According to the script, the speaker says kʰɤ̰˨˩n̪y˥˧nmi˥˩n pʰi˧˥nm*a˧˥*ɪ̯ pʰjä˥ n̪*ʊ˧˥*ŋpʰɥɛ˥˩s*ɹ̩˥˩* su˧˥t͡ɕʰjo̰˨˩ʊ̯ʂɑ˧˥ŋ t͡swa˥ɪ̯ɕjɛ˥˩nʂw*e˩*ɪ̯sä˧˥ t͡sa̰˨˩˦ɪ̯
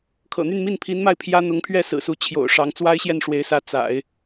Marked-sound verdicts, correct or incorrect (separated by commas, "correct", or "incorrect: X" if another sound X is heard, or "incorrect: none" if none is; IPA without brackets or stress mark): incorrect: a˥˩, correct, incorrect: ɹ̩˨˩, incorrect: e˧˥